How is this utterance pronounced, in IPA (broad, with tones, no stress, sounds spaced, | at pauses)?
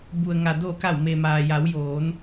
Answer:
b u˩ ə̯ ŋ a˩ d oː˧˩ k a˧˩ w m e˩ m aː˩ j a˩˧ w j oː˩˧ n